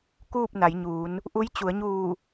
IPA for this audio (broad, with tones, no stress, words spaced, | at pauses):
kuː˥˨p̚na˩˧jɲuː˩˧n | ʔu˧˥j t͡ɕu˩˧ə̯ɲuː˧˩